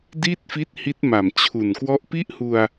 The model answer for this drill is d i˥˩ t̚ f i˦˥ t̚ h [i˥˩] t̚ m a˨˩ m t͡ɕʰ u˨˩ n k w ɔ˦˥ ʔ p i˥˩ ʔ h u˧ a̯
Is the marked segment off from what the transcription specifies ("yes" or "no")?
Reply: yes